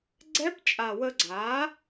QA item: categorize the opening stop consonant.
click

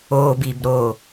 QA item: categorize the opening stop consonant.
plain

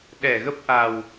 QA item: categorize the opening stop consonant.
implosive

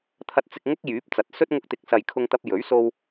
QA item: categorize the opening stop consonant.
aspirated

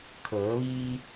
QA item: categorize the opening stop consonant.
aspirated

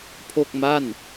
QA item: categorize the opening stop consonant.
aspirated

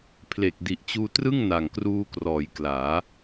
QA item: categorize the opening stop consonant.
aspirated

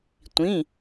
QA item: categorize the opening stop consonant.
plain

